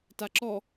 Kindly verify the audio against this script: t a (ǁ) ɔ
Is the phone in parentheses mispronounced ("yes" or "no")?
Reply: no